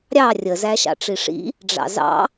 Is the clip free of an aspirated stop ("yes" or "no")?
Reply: yes